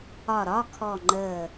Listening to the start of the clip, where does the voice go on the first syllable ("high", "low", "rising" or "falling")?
falling